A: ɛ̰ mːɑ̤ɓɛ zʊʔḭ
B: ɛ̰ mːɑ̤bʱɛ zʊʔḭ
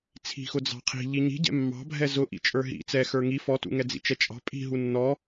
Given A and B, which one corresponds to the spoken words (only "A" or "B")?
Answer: B